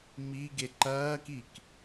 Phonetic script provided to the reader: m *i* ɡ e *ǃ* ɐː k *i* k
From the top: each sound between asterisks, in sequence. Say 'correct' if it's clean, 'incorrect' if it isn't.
correct, correct, correct

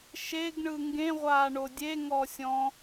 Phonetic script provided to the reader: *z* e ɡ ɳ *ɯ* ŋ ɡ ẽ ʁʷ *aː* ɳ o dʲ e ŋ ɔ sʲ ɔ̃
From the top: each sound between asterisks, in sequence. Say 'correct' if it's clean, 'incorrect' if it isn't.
incorrect: ʃ, correct, correct

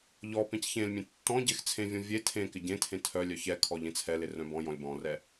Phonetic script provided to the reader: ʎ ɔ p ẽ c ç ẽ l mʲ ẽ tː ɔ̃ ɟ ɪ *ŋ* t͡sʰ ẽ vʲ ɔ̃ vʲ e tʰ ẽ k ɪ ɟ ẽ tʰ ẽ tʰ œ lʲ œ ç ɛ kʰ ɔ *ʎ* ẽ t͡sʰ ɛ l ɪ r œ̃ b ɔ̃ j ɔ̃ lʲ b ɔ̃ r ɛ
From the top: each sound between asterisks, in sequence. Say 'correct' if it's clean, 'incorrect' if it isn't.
incorrect: x, correct

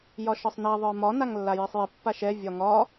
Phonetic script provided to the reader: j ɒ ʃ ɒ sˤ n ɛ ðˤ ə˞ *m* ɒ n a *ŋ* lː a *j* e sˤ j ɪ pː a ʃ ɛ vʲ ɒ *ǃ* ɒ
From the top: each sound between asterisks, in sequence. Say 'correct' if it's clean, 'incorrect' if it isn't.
correct, correct, correct, incorrect: ŋ

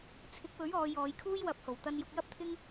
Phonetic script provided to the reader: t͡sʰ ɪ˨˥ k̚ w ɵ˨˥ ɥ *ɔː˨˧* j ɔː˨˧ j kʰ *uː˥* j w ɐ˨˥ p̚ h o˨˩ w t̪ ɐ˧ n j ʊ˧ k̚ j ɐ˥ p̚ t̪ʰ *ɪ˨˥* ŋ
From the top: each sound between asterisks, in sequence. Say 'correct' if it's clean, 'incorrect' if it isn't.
correct, correct, incorrect: ɪ˥

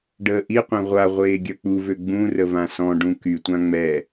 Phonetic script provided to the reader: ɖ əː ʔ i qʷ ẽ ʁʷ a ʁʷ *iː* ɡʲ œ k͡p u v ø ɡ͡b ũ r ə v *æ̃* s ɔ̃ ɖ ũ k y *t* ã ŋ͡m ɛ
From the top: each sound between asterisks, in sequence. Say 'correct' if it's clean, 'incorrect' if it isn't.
incorrect: eː, incorrect: ã, incorrect: tʷ

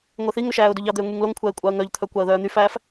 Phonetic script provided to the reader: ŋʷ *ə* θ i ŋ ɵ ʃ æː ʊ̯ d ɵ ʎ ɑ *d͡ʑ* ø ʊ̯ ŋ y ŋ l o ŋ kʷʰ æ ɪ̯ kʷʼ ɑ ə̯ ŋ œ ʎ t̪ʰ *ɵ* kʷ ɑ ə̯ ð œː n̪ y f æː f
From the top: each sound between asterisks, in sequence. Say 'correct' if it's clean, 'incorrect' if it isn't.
incorrect: ɛ, incorrect: d̪, incorrect: œ

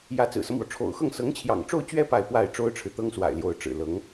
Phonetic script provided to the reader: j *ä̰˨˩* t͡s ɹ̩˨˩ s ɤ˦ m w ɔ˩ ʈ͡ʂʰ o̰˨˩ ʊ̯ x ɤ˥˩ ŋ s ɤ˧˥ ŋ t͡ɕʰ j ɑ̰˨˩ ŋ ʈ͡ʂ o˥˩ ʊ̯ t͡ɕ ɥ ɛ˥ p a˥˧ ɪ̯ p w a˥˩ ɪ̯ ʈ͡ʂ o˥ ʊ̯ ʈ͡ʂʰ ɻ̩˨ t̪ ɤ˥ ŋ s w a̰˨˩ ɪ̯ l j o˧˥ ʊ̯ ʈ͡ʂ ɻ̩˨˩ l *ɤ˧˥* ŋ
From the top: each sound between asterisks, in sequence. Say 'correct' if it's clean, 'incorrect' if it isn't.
incorrect: ä˧˥, correct

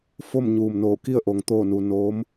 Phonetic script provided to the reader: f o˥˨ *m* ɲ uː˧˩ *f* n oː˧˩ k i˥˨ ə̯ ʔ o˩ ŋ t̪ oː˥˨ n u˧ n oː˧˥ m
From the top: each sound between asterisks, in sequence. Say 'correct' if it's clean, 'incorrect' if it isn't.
correct, incorrect: m

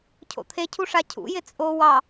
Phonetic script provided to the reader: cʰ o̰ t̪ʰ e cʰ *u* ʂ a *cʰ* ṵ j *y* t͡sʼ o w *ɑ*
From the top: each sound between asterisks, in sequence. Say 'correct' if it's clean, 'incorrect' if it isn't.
correct, correct, incorrect: ɪ, correct

